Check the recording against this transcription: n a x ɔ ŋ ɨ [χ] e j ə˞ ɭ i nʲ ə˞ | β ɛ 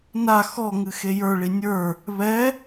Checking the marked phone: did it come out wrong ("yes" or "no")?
yes